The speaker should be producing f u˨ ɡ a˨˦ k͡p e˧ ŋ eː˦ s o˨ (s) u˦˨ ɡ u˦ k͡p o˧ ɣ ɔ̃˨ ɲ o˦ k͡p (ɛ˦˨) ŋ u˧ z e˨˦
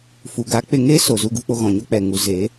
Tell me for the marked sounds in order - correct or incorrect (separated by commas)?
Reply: incorrect, incorrect